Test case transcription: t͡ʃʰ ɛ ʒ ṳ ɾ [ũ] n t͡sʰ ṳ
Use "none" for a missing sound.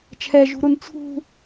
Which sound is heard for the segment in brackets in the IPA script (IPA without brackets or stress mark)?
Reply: u